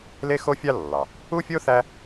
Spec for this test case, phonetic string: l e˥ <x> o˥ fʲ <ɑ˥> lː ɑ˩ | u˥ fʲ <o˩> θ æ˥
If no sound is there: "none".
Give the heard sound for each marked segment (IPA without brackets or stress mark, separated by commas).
x, ɑ˥, o˥